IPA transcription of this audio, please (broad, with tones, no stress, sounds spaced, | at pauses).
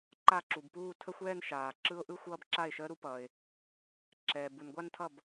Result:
ǃ a˥˩ ǁ u˩ b p uː˥˧ tʰ ə˥˧ xʷ ɛː˥˧ n ʃ aː˩ ǁ ɯ˦˥ ʊ̯ ʔ ɯ˥˧ xʷ ʌː˥˧ b ǁ a˥˩ ɪ̯ ʃ əː˦˥ ɾ u˦˥ p ʌː˩ ɪ̯ | ǁ ɛː˩ b u˩ n ɡʷ a˥˧ n tʰ ʌ˥˩ b